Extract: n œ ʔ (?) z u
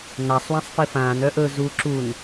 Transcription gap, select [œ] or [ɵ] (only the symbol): ɵ